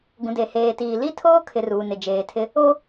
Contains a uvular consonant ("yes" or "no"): no